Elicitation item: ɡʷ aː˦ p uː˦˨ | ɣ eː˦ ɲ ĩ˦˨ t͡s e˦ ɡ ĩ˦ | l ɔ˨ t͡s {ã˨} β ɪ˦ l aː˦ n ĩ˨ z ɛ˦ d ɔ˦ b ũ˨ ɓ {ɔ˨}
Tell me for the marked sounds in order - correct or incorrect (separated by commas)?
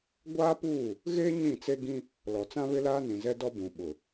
incorrect, incorrect